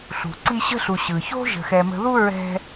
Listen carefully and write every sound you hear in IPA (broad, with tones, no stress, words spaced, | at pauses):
ɬṳ˩ǀi˦ɕə̤˥ɬu˨ ɕɯ˩ço̤˥ʒə̤˨xɛ˨ mə̤˦ ðu˥ɹɛ̤˦